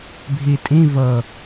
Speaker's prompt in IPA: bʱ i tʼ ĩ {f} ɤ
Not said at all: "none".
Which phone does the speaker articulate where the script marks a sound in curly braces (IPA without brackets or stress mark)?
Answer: v